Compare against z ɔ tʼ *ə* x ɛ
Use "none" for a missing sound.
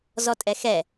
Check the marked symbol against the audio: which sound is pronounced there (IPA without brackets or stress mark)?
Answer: ɛ